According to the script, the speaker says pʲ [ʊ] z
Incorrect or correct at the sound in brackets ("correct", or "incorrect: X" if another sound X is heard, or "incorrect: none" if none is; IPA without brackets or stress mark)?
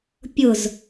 correct